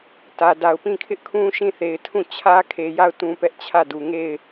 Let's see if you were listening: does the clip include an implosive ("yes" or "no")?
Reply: no